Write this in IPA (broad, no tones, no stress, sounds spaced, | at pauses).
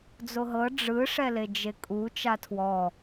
d͡z o ɦ ɤ ɖ͡ʐ ɯ ʂ ɛ l e d͡ʒ e kʼ u t͡ʃ a tʰ w ɔ